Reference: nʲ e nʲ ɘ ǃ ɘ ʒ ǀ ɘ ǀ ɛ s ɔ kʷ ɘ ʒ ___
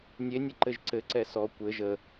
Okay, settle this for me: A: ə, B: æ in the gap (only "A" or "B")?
A